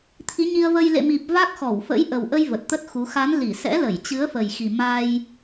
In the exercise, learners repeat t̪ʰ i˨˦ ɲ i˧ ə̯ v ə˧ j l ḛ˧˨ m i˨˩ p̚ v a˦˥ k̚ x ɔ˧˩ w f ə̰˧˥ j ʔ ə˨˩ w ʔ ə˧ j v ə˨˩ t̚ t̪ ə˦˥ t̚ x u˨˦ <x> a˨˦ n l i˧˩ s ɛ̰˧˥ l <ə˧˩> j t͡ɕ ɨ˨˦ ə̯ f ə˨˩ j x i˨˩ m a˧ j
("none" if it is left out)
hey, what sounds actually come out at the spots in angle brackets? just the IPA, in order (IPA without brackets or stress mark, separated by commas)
x, ə˧˩